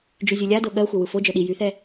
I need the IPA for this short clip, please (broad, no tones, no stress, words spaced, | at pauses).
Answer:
d͡ʒyzʲɯlʲado ɠɜxʷɛ wɯfod͡ʒœ ɗi jyθɛ